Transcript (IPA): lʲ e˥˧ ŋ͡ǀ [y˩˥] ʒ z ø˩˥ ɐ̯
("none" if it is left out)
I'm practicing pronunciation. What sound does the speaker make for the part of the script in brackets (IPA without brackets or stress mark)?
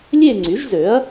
y˩˥